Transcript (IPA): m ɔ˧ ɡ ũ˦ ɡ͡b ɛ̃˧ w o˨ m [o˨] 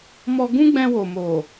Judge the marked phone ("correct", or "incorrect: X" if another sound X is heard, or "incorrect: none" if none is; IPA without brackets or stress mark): correct